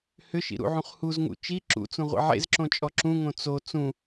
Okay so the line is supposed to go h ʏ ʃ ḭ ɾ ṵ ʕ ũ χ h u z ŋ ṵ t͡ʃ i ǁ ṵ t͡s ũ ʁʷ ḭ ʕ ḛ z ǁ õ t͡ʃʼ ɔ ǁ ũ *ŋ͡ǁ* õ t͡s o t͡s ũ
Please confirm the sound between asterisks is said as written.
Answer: no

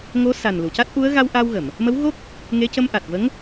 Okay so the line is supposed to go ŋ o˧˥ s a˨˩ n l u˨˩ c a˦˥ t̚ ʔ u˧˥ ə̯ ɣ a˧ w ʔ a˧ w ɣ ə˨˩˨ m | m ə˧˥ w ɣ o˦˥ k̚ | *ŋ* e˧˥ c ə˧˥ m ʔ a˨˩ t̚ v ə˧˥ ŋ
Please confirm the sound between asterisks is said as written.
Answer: yes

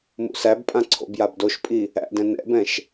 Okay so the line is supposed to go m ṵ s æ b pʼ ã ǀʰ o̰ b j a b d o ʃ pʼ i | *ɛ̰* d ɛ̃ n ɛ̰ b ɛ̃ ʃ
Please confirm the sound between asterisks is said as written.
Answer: no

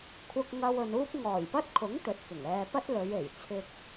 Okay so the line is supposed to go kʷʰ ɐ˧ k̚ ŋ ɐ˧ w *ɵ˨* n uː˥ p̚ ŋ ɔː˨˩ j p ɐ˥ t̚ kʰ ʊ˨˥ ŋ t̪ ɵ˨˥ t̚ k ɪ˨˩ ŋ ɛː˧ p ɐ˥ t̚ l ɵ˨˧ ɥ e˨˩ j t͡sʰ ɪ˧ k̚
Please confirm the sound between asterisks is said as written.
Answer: yes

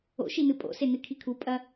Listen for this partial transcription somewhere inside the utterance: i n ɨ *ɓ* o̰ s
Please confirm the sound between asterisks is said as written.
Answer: no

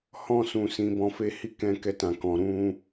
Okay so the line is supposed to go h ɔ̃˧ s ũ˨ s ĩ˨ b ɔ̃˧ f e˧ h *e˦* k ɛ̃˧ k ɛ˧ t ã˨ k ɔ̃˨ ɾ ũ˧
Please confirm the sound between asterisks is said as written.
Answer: no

